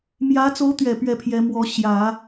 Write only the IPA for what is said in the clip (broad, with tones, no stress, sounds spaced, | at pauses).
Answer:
m j ä˧˥ t͡s o˧˥ ʊ̯ t̪ ɥ ɛ˨˩ p ɥ ɛ˥˩ pʰ j ɛ˧˥ m w ɔ˧˥ ɕ j ä˨˩˦